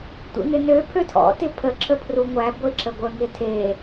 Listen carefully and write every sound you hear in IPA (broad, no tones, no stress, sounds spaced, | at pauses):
tʷ ḛ ŋ ɪ n ø pʰ ø tʰ ɔ̰ t ɪ pʰ ə ǁ ə pʰ r u ŋʷ æ ɡʷ ɪ ǁ ə ɡʷ ə ŋ ɪ tʰ e